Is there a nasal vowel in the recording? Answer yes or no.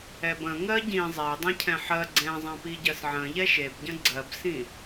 yes